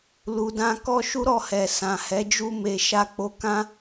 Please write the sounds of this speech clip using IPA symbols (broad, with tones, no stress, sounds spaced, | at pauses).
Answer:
l u˨ d ã˧ k ɔ˦ ʃ u˦ ɾ ɔ˦˨ h ɛ˨ s ã˨ h ɛ˨˦ d͡ʒ u˦ m e˧ ʃ a˦ k͡p o˦ k ã˦